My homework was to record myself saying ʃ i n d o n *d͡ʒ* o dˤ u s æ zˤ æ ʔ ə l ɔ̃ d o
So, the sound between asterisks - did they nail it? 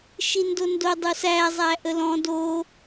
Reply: no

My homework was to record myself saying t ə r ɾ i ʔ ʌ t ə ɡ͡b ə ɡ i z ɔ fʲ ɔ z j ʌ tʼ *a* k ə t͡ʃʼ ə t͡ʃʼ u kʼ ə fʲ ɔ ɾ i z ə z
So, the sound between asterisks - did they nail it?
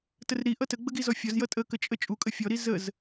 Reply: no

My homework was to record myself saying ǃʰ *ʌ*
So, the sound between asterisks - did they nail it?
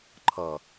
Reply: yes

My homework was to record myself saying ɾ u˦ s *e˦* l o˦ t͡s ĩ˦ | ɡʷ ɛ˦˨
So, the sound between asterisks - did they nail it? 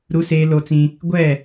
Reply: no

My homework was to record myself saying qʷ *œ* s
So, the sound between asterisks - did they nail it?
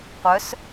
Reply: yes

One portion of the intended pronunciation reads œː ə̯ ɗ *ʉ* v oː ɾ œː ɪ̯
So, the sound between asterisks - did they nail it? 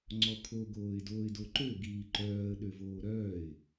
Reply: no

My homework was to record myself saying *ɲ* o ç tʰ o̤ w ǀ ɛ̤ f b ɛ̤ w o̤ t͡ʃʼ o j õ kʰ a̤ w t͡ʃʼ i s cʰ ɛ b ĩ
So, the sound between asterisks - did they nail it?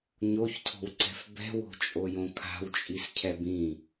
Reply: yes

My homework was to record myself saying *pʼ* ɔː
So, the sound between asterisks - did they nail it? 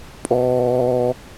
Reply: yes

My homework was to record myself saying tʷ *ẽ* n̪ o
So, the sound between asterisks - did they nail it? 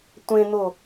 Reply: yes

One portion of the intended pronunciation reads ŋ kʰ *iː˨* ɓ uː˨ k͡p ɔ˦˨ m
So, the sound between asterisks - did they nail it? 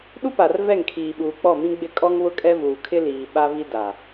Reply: yes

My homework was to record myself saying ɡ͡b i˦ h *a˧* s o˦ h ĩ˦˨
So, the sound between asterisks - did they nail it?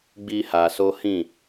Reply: yes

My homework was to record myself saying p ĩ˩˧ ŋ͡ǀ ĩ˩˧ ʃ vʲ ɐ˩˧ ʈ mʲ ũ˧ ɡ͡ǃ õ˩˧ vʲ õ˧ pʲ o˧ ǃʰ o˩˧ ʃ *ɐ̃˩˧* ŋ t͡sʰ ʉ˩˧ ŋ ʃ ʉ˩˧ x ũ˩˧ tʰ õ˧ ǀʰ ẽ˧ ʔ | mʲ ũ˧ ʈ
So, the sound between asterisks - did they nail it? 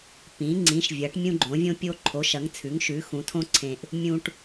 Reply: no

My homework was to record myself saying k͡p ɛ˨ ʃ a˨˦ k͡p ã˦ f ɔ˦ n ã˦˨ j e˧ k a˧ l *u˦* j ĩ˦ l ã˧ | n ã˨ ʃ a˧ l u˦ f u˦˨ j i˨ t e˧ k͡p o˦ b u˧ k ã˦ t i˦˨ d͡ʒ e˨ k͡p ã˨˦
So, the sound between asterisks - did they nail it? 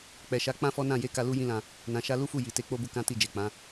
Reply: yes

